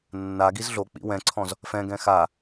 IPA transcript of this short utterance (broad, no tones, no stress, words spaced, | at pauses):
nːa ɡizɮok͡pḭ wɛ̃ǀʰɔ̃z | fɛ̃ɡɛ̃ xa